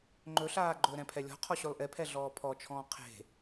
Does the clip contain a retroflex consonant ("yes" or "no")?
no